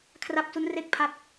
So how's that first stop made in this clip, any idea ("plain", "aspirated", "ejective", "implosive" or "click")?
aspirated